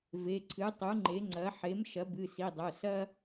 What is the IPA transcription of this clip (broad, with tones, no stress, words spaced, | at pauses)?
ve˩˧˩ǀʰɨ˩˥ tˤu˩˥ŋ͡ǃe˩˥ŋ͡ǀɐ˩˥ ħe˩˥mʃɐ˩˥ bɨ˩˧˩si˩˧˩dˤo˩˧˩ sɐ˥